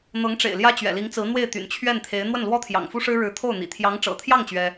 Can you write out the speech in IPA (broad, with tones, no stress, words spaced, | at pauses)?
n̪ɤ˧˥ŋʈ͡ʂḛ˨˩ɪ̯ ljä˥t͡ɕɥɛ̰˨˩li˧˥ŋt͡sɹ̩˧˥ n̪we˥˩ɪ̯t̪y̰˨˩n t͡ɕʰɥɛ˥˩nt̪ʰe˧˥ɪ̯ n̪wə˥˩nlwɔ˥t̪ʰjɑ̰˨˩ŋfu˥ ʂɻ̩˥ɻɻ̩˧˥t̪ʰo˥˩ʊ̯ n̪ḭ˨˩ t̪ʰjɑ˧˥ŋʈ͡ʂɤ̰˨˩t̪ʰjɑ˥˩ŋ t͡ɕɥɛ˥